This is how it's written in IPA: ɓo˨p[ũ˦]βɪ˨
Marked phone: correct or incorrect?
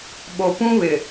correct